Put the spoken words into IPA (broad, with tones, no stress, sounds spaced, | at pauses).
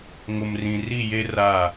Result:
ŋ ʊ˨ m r ĩ˨ r i˦˨ j e˦ r a˦˨